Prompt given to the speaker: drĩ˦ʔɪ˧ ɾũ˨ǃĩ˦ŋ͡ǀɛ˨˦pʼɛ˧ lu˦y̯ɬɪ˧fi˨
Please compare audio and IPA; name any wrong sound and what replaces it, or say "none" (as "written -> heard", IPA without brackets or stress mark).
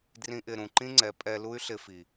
none